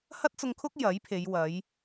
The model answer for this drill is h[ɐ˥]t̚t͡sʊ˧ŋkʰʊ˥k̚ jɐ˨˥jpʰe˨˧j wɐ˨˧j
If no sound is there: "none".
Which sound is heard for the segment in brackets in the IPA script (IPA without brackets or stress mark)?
ɐ˥